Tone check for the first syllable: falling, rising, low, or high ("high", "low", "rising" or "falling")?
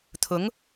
rising